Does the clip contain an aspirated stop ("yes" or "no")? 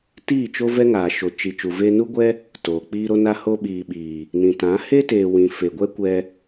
no